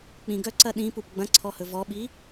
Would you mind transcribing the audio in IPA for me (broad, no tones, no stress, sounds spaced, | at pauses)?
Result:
k͡p ĩ ɡ œ ǀ ɐ ɗ ĩ p u p ɡ͡b ɐ̃ ǀʰ ɔ h ɵ v ɔ ɓ i